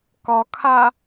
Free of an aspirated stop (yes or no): no